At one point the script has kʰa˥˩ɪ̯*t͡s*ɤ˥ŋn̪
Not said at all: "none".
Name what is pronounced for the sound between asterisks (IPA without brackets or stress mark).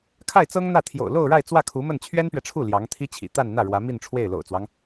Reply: t͡s